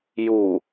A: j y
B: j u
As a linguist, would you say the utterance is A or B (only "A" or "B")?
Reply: B